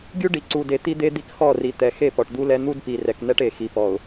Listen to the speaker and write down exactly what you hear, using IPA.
ɡʲ u˦ ɖ i˨ ǀ u˨ d e˨ t̪ i˦ d̪ e˦ d̪ i˦ k x ɔ˦˨ r i˨ t̪ ɛ˨ x e˦˨ p ɔ˨ ʈ d̪ u˦ l ɛ˦ n̪ u˦ d p i˨ r ɛ˨ k n̪ ɛ˦ ʈ e˨ x i˨ p ɔ˨ ʊ̯

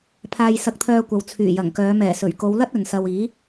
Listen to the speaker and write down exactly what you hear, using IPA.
pʰ aː˧ j s ɐ˧ k̚ t̪ʰ œː˧ kʷ ɐ˨ w t͡sʰ yː˨˩ j ɐ˨˩ ŋ k œː˨˧ m ɛː˨˩ s ɵ˨˩ ɥ k o˨˧ w l ɐ˥ t̚ ɵ˨ n s ɐ˧ w iː˨˥

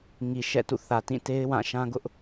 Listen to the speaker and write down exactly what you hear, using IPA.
ŋ i˨ ʃ ɛ̰˦˨ t ṵ˦˨ θ ä˨ t ĩ˦˨ t e˦ ɪ̯ w ã˦˨ ʃ ã˦ ɡ ʊ˦ ʔ

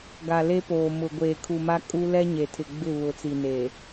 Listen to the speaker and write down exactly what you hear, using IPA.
ɡ a˨ l e˦ p oː˨ m ʊ˨ ɡʷ eː˨ kʰ u˨ m a˦ kʼ u˦ l ɛ˦ ɲ e˨ tʰ ɪ˨ ɡ͡b ɪ˦˨ β ʊ˨ t͡s i˨ n eː˨

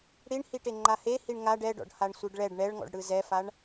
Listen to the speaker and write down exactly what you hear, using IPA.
ɽ i ɳ h i ʈ e ŋ͡ǃ a h e h i ɳ ŋ a ɖ ɛ ɖ ɔ̰ ɖ h a ɳ sʷ ɯ ɖ ɭ ɛ ɖ ɳ ɛ ɭ ŋ ɔ̰ ɖ ɽ ɯ z ɛ f a ɳ

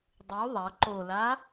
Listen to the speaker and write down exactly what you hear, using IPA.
dˤ u ðˤ ɐ ǃ o l a

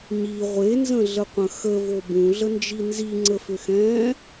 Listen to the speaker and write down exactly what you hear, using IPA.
ɲ i ʁʷ e n z ə̃ ɮ ə qʷ ə̃ x ə v o b ũ ɮ ə n d͡ʒ i n z i ŋ͡ǀ ə f ʏ x ɛ̃ː

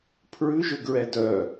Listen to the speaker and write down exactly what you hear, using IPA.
pʰ ɹ ʉ ʒ ø ɡ ɹ ɛ d œ

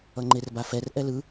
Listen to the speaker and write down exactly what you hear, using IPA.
ʌ ŋ͡ǃ e r b a f ɛ r ʔ ɛ l ɯ

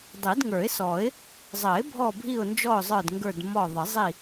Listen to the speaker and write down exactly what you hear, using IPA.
dˤ i˨˩˦ d ŋ ə˞˨˩˦ ɪ̯ s ɔ˨˩˦ ɪ̯ | zˤ ə˨˩˦ ɪ̯ bʱ ɔ˦˨ bʱ i˦˨ ʊ̯ n d͡ʒ ɔ˦˨ ʊ̯ zˤ ə˞˦˨ d ŋ ɡ ə˞˦˨ d m ɔ˦˨ ðˤ ə˨˩˦ zˤ i˦˨

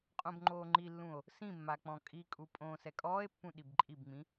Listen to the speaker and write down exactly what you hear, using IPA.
qʼ õ b ŋ͡ǃ oː ŋ͡ǃ i lː ũ o̯ | s ĩ mː a k͡p ɔ̃ kʼ i kʼ u pʼ õː s ɛ kʼ ɔː e̯ pː ũ ɗ i b ǃʼ i b ŋ͡m ĩ

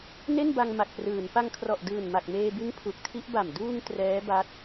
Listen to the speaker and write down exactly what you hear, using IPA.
n e˥˩ n b a˧ ŋ m a˨˩ k̚ p r ɯː˩˦ n p a˧ ŋ kʰ r ɔ˨˩ ʔ d ɯː˨˩ n m a˨˩ k̚ m eː˧ b ɯ˦˥ ŋ pʰ u˨˩ k̚ tʰ i˦˥ ʔ b a˨˩ m d uː˧ ŋ t r ɛː˦˥ b a˦˥ t̚

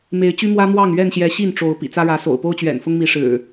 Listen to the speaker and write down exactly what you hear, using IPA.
m e˨˦ ɪ̯ t͡ɕ y˦ m w ä˦ m w ɑ˥˨ ŋ ɥ ɛ˥˨ n ɕ j ɛ˨˦ ɕ i˥˨ n ʈ͡ʂ o˨˦ ʊ̯ p ḭ˨˩ t͡s ä˦ ɻ ä˨˦ s o̰˨˩ ʊ̯ p o˦ ʊ̯ t͡ɕ ɥ ɛ̰˨˩ n f ʊ˦ ŋ m i˨˦ ʂ ɻ̩˨˩

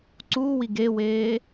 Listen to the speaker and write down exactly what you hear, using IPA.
ǀ uː w i ɡ e w eː

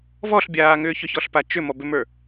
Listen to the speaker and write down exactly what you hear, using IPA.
v ɔ ɬ bʲ aː ŋ ʏː ç ʏ ç ɔ ɬ p a t͡ʃ ʏ m ɔ b ʏ m ə˞

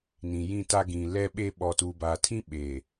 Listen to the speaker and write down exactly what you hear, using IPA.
n ĩ˨ j ĩ˦˨ t a˦ ɡ ĩ˨ l ɛ˦ ɓ e˦ ɓ ɔ˨ t uː˨ b aː˨ tʰ ĩ˦ ɓ e˨

